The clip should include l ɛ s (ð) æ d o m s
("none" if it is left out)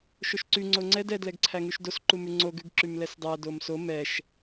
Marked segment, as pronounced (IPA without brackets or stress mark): dˤ